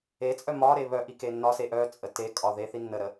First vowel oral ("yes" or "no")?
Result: yes